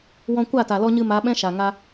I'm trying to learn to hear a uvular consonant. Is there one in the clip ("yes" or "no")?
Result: no